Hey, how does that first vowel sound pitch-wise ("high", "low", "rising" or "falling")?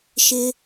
high